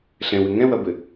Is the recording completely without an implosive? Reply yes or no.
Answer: yes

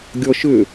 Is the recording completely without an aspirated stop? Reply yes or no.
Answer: yes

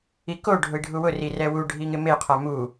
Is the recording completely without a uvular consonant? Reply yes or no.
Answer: no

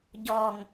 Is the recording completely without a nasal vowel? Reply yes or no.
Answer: yes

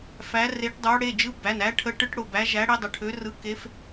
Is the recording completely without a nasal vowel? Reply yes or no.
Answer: yes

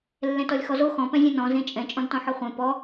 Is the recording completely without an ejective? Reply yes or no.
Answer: no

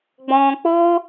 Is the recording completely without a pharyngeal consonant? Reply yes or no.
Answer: yes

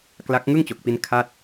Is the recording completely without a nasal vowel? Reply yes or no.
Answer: yes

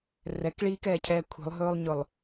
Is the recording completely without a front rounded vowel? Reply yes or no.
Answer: yes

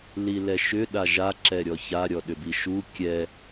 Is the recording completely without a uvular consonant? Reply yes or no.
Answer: yes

